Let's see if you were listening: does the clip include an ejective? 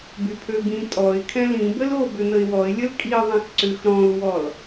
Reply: yes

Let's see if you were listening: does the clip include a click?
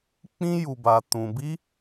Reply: no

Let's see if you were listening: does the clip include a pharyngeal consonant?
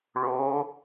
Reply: no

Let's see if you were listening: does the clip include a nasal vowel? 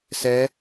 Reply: no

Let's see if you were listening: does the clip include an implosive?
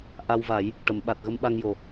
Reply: yes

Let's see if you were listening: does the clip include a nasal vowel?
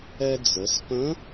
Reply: yes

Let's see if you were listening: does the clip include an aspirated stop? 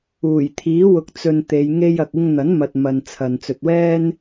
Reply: yes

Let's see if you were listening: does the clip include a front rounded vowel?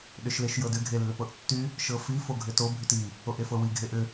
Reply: yes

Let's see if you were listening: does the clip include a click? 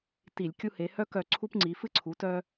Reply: yes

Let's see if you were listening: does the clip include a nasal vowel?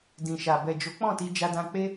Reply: yes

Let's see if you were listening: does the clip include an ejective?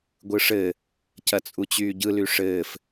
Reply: yes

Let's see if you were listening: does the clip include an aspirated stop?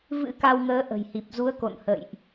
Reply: no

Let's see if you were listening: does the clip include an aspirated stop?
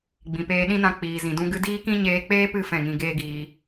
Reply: no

